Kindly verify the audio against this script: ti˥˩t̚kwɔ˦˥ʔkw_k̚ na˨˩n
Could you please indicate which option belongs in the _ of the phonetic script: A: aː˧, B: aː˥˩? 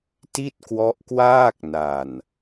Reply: B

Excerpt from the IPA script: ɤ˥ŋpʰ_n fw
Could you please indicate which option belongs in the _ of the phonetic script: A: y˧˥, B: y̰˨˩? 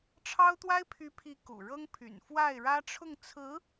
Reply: B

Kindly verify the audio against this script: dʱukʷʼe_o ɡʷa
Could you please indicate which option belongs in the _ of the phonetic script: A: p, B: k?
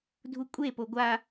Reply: A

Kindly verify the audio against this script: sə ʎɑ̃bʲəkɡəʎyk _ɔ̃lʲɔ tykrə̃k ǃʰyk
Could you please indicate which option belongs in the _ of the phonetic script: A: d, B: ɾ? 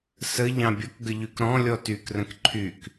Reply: B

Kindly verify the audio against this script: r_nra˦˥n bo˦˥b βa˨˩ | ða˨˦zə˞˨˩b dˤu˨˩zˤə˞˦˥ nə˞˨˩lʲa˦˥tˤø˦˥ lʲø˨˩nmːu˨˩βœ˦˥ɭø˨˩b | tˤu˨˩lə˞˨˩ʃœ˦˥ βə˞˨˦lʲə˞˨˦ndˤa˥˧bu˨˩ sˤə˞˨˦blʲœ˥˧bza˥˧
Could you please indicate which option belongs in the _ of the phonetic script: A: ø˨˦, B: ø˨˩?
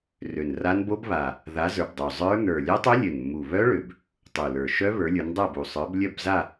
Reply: B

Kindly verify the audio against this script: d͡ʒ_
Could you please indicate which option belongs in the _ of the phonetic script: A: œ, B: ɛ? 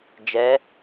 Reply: B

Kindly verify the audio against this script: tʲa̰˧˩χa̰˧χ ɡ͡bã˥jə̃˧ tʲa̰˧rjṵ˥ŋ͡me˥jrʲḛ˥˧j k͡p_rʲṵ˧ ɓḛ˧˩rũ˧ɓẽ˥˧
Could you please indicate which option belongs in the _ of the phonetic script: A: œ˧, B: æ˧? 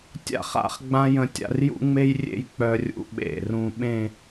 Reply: A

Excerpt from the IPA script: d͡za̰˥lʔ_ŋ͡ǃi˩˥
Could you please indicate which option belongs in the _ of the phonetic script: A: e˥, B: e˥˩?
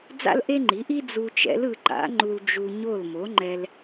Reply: A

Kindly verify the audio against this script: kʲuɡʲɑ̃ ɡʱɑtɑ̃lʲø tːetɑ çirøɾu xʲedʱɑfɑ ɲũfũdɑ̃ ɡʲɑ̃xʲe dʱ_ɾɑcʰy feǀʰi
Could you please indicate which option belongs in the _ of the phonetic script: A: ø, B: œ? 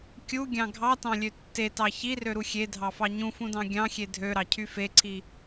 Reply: A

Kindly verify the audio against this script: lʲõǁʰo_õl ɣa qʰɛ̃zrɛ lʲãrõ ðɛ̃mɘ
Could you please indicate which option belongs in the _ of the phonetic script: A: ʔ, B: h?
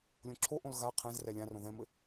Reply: A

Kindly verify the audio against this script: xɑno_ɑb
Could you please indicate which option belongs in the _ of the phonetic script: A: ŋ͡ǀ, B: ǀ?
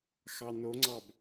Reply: A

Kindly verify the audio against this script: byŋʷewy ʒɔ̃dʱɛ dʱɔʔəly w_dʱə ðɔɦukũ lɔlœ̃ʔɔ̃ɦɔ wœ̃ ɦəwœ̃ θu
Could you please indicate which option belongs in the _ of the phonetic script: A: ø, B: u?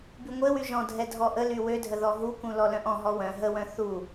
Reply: A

